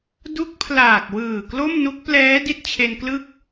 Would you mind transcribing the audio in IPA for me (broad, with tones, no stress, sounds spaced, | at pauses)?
d u˦˥ k̚ pʰ l aː˨˩ k̚ w ɯː˨˩ k l o˥˩ m n u˦˥ k̚ p l ɛː˦˥ d i˥˩ t̚ t͡ɕʰ e˧ n k l ɯ˥˩ k̚